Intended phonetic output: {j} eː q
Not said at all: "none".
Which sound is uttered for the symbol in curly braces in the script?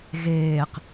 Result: ɣ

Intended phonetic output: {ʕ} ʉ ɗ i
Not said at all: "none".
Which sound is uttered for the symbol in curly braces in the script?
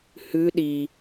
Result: h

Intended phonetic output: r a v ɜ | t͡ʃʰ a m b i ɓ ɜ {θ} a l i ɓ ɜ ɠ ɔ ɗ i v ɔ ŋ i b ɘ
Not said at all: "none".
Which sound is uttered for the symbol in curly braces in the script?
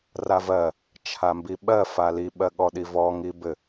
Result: f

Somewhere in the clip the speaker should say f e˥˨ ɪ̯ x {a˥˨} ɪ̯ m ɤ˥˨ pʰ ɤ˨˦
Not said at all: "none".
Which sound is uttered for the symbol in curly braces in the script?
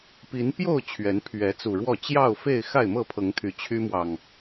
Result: a˥˨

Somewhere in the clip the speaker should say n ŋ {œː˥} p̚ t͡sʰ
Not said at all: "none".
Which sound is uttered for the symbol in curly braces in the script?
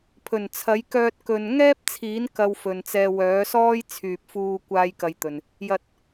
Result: ɛː˥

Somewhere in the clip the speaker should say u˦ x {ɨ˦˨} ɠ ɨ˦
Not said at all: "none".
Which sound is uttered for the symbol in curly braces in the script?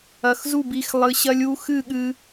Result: ɨ˦˨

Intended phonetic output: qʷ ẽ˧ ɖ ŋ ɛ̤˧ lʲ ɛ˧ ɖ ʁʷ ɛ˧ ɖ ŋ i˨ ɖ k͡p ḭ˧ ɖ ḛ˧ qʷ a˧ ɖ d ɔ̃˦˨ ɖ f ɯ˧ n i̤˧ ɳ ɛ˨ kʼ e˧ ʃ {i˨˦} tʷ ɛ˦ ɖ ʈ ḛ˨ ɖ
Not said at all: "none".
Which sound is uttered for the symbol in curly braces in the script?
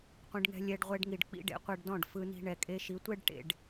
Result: i˨˦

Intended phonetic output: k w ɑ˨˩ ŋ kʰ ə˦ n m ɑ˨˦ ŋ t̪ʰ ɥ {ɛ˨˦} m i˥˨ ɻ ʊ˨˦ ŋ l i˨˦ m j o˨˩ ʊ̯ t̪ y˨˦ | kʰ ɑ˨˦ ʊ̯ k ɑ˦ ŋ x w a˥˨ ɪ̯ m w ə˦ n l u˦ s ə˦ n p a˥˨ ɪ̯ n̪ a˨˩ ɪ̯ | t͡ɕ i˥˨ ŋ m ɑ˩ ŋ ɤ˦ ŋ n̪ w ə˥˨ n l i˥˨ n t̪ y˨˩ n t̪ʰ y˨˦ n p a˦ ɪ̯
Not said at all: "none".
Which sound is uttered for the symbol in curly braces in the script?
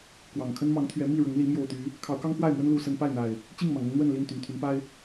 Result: ɛ˨˦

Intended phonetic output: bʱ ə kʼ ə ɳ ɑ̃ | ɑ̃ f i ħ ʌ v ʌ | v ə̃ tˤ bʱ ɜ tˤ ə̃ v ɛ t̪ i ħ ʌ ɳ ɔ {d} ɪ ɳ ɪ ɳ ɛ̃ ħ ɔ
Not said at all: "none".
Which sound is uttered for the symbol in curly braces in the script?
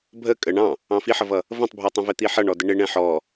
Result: d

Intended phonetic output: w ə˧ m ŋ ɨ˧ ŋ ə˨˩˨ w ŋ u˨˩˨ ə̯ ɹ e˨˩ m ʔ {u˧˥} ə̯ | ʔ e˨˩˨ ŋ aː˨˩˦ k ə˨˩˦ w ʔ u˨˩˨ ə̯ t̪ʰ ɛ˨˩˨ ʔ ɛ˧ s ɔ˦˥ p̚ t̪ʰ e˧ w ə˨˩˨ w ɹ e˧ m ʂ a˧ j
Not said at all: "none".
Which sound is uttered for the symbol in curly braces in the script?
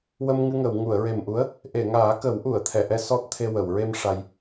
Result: u˧˥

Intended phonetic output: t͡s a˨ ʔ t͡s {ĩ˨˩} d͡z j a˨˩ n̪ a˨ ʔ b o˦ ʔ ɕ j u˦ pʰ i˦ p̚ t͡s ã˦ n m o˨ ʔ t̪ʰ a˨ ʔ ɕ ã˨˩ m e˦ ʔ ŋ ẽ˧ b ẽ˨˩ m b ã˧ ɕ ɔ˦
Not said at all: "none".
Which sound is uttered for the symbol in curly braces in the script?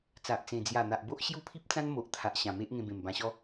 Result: ẽ˨˩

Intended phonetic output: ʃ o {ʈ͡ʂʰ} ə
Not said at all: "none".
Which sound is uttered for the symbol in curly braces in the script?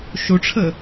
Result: ʈ͡ʂʰ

